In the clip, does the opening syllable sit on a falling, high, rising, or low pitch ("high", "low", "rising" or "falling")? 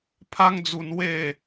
high